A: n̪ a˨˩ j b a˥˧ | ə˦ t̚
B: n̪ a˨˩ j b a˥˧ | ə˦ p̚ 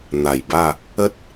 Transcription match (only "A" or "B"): A